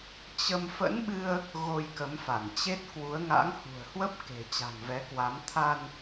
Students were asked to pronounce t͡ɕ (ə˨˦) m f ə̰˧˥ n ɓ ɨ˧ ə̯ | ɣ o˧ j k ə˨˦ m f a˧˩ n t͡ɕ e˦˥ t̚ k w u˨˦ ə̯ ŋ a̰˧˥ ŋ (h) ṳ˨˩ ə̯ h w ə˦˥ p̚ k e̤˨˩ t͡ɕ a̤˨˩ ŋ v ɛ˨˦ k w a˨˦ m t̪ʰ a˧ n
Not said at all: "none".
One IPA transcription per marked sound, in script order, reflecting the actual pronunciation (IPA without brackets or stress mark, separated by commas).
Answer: ə˧, h